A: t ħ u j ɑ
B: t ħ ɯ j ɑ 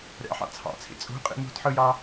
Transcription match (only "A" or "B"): B